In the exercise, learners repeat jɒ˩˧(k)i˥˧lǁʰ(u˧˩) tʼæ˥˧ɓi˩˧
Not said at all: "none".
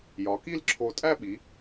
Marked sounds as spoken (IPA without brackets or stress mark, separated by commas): k, o˧˩